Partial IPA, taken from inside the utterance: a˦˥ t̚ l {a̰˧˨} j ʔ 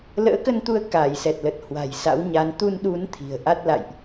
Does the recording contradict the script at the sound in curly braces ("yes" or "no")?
no